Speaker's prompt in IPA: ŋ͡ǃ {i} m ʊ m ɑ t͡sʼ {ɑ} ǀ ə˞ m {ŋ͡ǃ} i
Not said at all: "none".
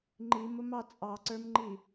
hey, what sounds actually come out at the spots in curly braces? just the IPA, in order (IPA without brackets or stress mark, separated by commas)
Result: i, ɑ, ŋ͡ǃ